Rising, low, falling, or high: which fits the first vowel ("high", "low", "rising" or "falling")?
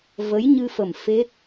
rising